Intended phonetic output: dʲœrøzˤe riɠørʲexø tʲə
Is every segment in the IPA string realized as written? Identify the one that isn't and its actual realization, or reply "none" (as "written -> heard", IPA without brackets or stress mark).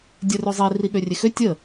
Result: none